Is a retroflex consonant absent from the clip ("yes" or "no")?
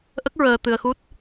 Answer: yes